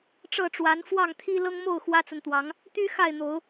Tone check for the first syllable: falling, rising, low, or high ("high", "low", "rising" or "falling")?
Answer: falling